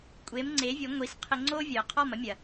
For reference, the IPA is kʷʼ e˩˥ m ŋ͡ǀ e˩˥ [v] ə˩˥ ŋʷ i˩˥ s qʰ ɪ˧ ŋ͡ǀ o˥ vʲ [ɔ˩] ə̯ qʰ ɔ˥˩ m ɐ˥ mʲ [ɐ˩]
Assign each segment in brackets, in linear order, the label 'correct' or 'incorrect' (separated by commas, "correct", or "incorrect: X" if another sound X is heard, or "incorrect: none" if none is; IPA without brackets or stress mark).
incorrect: vʲ, incorrect: o˩, correct